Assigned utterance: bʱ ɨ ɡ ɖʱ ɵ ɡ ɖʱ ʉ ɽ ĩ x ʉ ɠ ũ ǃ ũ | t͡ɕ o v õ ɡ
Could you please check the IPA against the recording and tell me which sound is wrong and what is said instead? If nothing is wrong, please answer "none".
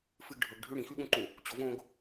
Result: bʱ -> f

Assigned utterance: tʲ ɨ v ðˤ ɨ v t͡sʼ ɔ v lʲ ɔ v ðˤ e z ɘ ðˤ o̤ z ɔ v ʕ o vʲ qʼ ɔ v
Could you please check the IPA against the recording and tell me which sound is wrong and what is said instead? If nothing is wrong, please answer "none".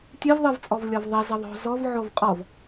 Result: vʲ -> v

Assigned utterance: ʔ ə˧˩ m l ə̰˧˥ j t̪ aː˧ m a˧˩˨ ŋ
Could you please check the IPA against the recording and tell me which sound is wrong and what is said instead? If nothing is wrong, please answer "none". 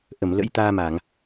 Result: none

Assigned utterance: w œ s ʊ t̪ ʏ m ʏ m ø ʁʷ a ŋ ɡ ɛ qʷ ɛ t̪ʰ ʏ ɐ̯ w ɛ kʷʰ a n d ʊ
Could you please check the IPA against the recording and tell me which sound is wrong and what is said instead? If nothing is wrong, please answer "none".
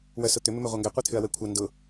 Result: none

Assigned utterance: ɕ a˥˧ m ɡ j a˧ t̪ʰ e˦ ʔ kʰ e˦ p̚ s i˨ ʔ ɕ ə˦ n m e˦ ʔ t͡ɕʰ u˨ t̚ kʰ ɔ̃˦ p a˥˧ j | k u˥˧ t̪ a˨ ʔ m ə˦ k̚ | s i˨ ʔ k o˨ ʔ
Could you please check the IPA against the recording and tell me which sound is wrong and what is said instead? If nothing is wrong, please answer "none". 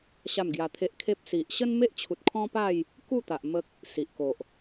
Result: none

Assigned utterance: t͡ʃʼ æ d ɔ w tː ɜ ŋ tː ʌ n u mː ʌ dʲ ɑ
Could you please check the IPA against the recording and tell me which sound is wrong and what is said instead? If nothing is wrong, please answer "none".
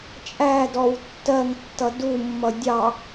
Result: n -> d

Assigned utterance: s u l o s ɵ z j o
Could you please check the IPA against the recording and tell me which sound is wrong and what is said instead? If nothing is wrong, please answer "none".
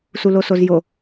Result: ɵ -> o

